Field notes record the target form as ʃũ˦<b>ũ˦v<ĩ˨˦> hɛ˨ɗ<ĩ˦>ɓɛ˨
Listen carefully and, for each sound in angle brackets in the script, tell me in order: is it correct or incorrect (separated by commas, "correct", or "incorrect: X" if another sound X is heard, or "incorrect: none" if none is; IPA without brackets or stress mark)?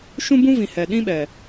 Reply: correct, incorrect: ĩ˨, correct